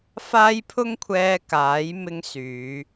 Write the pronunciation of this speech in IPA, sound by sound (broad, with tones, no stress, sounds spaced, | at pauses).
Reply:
f aː˧ j pʰ ʊ˧ ŋ kʷʰ ɛː˨ k aː˨˥ j m ɪ˧ ŋ s yː˨˧